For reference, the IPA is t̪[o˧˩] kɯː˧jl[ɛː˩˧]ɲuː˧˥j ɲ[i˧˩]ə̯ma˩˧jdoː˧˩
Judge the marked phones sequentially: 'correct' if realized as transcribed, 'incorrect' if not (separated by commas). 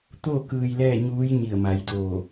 incorrect, incorrect, correct